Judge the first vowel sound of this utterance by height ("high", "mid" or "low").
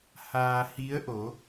low